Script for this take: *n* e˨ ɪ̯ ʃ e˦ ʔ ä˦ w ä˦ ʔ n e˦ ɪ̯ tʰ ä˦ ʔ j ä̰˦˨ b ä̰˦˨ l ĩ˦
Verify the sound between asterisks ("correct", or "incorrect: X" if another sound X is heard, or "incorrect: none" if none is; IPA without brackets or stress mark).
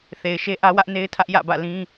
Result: incorrect: θ